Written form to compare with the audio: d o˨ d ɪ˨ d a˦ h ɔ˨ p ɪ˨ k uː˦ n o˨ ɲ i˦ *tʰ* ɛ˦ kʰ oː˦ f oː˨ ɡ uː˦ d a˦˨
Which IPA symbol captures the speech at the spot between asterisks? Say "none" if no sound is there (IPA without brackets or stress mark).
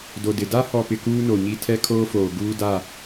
tʰ